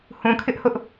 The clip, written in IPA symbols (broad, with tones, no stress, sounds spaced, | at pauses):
h ũ˨ kʰ ɪ˦ ʔ h ʊ˦ ʔ